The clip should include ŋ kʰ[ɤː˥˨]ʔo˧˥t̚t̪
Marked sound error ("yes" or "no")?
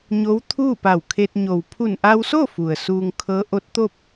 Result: yes